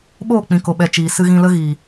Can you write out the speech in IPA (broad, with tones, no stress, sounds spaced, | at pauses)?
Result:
ɓ oː˦˨ k͡p ĩ˨ k o˨ ɓ ɛ˨ t͡ʃ iː˨ s ɨ˧ ɣ ĩ˧ l ə˦ ɣ iː˨